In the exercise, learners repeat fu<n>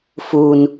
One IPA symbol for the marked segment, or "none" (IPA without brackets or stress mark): n